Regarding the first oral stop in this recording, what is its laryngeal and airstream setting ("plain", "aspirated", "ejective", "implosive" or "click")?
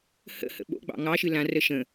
implosive